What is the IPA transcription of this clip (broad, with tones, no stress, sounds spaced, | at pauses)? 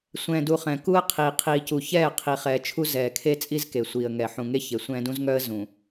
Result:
sʷ ɛ̃ː˨ d u˨ χ ɛ̃˨ k u˦ ə̯ qʰ iː˨ qʰ iː˨ c u˨ ç ɛː˦˨ qʰ i˨ χ ɛː˨ t͡ʃʰ u˦ z ɛː˨ kʰ e˦ t͡sʼ i˦ z k e˨ sʷ iː˨ ə̯ ŋ ɛ˨ ħ ũ˨ ŋ e˦ ç e˨ sʷ ɛ̃ː˦ d ũ˦ z ŋ œ˦ ə̯ z ũ˨